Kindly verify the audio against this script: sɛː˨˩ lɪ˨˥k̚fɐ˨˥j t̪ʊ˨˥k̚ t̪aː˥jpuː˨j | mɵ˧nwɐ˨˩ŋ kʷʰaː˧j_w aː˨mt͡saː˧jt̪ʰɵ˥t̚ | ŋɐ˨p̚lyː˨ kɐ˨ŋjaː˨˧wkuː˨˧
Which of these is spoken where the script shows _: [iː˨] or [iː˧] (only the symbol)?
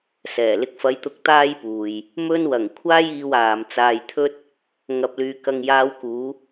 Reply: iː˨